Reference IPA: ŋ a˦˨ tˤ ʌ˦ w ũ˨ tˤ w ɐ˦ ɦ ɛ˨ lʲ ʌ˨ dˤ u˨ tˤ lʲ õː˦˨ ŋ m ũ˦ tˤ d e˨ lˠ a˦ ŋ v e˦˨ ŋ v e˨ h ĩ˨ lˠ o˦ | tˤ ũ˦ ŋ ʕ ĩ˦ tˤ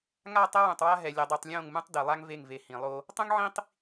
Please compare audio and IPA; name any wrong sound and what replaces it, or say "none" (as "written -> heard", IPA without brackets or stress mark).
ɐ˦ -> a˦